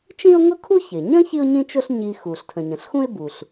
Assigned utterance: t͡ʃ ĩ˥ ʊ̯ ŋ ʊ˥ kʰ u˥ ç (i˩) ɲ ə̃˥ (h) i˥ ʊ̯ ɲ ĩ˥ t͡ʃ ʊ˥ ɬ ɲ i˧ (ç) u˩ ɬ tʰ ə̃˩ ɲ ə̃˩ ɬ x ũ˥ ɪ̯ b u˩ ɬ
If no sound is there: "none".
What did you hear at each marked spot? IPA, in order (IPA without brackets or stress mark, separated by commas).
ɪ˩, ç, x